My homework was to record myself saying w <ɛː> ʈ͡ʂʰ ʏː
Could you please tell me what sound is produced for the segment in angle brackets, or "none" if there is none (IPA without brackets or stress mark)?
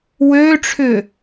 øː